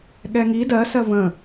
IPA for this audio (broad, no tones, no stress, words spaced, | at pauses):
ɠɛŋi dɜ sɜvə̃